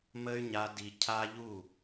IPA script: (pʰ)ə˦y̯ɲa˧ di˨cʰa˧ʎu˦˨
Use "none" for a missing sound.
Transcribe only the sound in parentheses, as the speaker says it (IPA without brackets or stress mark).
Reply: m